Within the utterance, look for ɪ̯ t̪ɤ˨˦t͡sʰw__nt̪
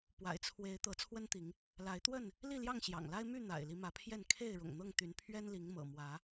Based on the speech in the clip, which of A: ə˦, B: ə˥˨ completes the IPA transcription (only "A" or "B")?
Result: A